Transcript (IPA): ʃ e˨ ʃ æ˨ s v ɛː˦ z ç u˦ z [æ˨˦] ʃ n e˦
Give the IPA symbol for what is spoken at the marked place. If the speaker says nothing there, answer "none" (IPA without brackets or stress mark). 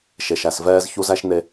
æ˦